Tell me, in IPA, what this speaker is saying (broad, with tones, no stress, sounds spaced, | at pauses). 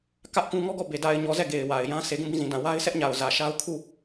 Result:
k ä˦ ʔ k ũ˦ ŋ ɔ˦ ɡ ɔ˦˨ b e˨ d a˨ ɪ̯ ɲ ɔ˨ z ɛ˦˨ ɡ e˨ ɪ̯ w a˨ ɪ̯ j ã˦ sʰ e˨ ɡ ũ˦˨ b ĩ˦˨ z ĩ˨ d ã˨ w a˦ ɪ̯ sʰ ɛ˦ ʔ ɲ a˨ ʊ̯ z ä˨ ʃ a˦ ʊ̯ kʰ u˦˨